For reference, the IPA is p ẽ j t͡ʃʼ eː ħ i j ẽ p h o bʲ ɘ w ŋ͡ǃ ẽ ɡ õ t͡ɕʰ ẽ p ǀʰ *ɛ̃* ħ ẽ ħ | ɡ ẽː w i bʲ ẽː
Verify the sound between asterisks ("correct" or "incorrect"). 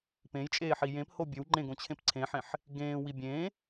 incorrect